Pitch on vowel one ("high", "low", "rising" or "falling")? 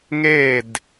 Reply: falling